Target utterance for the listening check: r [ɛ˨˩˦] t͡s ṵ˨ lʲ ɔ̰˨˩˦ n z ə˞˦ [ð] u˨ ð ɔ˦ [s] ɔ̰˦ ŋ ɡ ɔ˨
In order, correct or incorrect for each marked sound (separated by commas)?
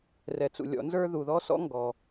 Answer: incorrect, correct, correct